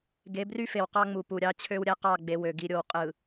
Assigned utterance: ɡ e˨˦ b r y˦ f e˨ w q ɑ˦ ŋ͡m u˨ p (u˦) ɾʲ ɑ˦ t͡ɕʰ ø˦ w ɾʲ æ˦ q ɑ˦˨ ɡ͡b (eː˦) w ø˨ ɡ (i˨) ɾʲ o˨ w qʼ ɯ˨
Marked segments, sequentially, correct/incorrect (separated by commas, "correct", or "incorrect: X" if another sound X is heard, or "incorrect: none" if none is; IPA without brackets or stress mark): incorrect: u˨, incorrect: e˦, correct